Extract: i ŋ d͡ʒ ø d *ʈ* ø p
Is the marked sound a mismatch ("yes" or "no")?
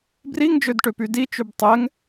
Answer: no